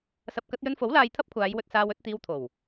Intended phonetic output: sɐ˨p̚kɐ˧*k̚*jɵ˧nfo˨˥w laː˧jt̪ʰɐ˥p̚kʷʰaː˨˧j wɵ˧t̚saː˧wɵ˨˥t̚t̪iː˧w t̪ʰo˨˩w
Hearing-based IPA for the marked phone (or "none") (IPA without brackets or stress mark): t̚